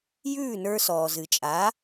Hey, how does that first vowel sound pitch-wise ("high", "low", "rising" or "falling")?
falling